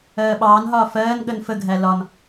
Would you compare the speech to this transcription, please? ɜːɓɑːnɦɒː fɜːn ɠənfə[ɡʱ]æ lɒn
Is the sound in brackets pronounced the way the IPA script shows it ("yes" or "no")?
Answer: yes